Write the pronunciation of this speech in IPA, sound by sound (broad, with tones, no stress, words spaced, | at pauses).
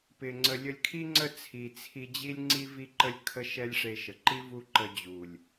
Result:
pɪ˧ŋ͡ǀə˧ lʲə˧lʲkʰi˦ŋ͡ǀə˦˨ t͡sʰi˨t͡sʰi˧ d͡ʑi˦lʲŋ͡ǀi˦ vi˦ǃə˦lʲ kʰə˦ʃɛ˦lʲ ʂe˧ʃə˨ǃi˦ vu˦ ǃə˧ d͡ʑu˨lʲ